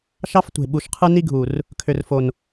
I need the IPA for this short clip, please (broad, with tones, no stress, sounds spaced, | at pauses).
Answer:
ʃ ɑ˦ f tʷ e̤˨ ɓ u˨ ʃ qʰ ɯ˦ n i˦ ɡʱ u˨ r | kʰ ø˨ r f o˨ n